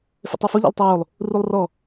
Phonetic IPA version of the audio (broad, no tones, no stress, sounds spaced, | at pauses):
f ḛ tˤ ɛ f o ʎ a̰ lˠ tˤ o w o lˠ | r u lˠ r ɔ